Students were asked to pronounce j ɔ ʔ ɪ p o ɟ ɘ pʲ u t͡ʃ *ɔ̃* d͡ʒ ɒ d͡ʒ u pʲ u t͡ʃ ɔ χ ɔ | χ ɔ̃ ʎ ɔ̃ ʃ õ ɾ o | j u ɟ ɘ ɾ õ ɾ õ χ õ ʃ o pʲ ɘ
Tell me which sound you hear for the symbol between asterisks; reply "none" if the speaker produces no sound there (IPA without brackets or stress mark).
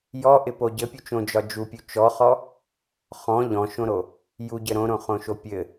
õ